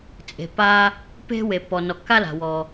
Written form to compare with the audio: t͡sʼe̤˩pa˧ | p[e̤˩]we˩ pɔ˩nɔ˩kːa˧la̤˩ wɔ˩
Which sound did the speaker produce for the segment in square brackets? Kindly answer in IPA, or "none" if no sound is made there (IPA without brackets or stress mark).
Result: e̤˧